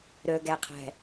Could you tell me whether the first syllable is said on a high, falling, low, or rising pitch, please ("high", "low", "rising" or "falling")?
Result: low